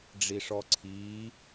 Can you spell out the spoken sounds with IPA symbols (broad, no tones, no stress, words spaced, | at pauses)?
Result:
ɖ͡ʐiʂɔǀʰiː